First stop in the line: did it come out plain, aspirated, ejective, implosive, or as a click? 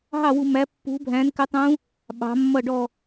plain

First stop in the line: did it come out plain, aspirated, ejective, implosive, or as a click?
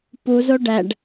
plain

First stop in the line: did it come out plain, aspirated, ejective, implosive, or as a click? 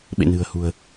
implosive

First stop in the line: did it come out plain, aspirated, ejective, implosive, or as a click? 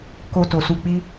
plain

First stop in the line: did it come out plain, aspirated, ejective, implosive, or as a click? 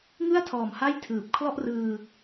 aspirated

